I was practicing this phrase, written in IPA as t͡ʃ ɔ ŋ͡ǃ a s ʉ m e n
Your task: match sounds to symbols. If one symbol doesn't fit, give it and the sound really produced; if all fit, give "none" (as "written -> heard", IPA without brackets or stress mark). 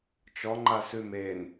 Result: none